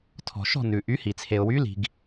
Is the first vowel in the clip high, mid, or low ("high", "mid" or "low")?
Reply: mid